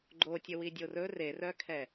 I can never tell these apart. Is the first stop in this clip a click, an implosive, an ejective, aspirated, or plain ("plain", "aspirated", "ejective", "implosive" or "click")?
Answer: click